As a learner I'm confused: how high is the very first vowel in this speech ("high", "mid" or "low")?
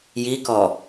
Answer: high